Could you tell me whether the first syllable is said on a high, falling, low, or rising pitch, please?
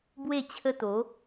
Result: falling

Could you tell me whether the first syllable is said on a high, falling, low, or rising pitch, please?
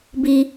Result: high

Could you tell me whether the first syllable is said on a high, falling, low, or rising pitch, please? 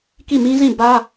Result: falling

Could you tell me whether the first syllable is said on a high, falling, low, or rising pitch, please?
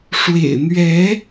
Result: low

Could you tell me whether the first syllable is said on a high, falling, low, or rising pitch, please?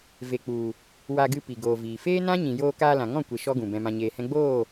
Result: low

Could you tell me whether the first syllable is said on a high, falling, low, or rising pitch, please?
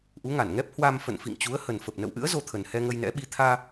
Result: rising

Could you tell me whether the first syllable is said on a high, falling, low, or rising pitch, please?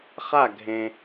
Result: falling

